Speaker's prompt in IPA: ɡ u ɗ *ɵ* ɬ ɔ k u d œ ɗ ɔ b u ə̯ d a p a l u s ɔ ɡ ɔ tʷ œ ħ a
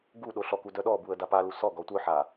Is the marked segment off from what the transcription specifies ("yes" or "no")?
yes